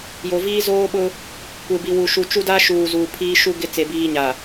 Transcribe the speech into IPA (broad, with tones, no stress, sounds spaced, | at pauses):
j o˨ v iː˦ z oː˦ ɓ ʊ˦ | kʷ e˨ b i˨ w u˨ ʃ u˨ t͡ʃ u˦ d a˦ ʃ uː˨ z uː˨ pʰ iː˦ ʃ u˦ ɡ ɪ˦ t͡s e˨ b iː˦ ɲ a˨